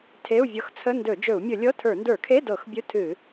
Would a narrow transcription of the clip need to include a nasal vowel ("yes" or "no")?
no